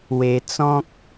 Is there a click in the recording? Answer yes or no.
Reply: no